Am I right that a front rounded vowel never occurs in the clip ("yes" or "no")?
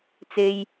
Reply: yes